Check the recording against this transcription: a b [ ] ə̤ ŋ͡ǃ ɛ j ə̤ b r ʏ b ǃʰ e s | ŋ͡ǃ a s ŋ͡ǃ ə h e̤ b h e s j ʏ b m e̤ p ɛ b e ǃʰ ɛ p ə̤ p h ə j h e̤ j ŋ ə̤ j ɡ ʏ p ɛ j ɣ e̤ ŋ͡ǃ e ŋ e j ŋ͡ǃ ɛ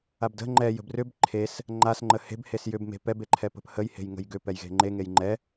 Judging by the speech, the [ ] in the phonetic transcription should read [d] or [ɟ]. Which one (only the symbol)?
d